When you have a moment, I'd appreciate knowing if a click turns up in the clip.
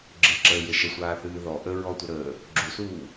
yes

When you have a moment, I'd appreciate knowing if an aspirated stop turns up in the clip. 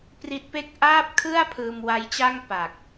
yes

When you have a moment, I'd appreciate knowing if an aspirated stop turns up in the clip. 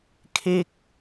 yes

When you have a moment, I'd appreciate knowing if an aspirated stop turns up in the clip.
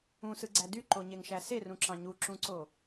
no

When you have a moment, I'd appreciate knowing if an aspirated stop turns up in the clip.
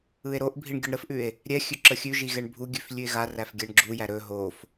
no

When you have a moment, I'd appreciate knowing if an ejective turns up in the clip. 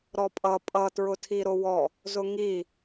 yes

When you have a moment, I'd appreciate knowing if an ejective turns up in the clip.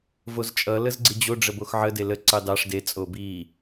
yes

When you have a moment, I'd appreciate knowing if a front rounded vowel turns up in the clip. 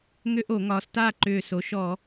yes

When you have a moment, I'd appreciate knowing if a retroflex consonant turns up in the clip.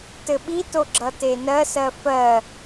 no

